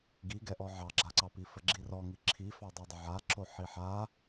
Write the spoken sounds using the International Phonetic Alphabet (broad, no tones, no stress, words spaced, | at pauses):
ɡiɡɛʔɔ ʕɑɡ͡ǁaǀɑpi fəɡ͡ǁirɔŋi ǁʰifɑ dˤidˤəʕaǁo ħiħa